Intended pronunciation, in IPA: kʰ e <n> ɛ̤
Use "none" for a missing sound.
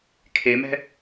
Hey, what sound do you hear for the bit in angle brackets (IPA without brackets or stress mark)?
m